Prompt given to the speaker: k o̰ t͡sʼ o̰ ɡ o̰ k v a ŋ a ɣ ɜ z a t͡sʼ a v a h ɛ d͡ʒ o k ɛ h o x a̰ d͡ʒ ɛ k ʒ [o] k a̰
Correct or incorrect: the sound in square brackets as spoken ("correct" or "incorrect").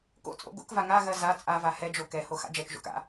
incorrect